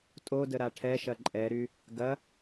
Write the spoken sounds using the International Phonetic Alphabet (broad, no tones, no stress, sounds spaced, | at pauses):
tʼ o d ə ɾ a ʈʰ ɛ ʃ ɐ ǃʼ ɛ ɾ y | ɡ ɐ